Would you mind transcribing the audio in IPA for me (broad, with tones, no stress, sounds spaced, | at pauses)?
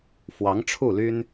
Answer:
f w ɑ˧˥ ŋ ʈ͡ʂʰ u˥˩ l y˥ n